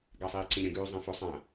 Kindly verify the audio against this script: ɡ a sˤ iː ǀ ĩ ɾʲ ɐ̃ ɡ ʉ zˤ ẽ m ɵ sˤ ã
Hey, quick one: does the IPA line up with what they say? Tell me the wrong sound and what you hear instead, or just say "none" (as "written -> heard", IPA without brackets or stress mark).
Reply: m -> f